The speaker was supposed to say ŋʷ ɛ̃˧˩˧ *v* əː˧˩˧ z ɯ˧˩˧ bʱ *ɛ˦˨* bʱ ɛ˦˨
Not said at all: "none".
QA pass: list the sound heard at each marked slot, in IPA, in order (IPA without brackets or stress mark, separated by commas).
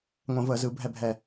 v, ɛ˦˨